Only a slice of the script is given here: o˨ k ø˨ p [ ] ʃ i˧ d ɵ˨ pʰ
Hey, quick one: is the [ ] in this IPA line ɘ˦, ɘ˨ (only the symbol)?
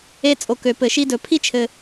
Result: ɘ˨